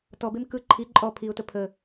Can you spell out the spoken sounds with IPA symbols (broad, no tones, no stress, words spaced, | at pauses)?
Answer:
tɔbem kɯ ǃʰi ǃʼɔ pʰiʊ̯tə pʰə